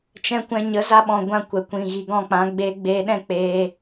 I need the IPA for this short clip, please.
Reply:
t͡ʃ ɛ̃˧ kʷ ɛ̃˧ ɲ ə˨˦ z a˧ ɓ ɔ̃˨ ɡʷ ã˧ kʷ ɛ˨ kʷ ĩ˨ ɣ i˨ ɡ ɔ̃˦˨ k͡p ã˨˦ ɡ͡b eː˧ ɡ͡b eː˧ ɗ ɛ̃˦ k͡p eː˧

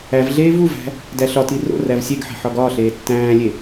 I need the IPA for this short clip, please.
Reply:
æ v ɮ eː v u v æ̤ | d æ ɬ ɒ t i r o̰ r æ v sʲ e ɡ ħ e̤ ħ ɒ ɡ ɒː ɬ eː tː æ̃ː lʲ e

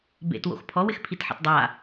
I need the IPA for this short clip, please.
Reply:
b ḛ t w o̰ x pʰ ɔ w ɪ x pʰ i t ħ ḛ t dˤ a

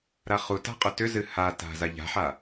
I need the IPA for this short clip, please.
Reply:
ɾ a χ u t a̤ qʼ ʏ t ʏ z ɨ h a t a̤ z a ʎ a̤ ħ a

